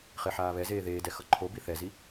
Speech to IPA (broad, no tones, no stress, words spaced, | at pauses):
χeħaːβɛzeː ðeːdɛ xʌǃʰobi θɛzi